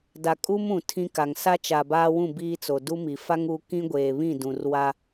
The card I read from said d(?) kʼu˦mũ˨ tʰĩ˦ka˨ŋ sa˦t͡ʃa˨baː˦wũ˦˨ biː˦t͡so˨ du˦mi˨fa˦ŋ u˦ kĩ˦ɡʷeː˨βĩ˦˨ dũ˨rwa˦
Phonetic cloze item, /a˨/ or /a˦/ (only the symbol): a˨